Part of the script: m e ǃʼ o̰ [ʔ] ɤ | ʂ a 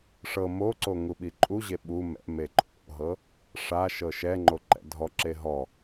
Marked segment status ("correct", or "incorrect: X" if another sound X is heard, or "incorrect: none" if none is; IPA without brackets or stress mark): incorrect: ɦ